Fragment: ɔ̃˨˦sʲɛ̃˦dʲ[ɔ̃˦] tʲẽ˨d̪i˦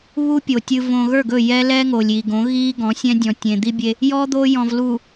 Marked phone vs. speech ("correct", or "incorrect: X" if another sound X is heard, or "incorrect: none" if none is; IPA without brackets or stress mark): incorrect: ɔ̃˨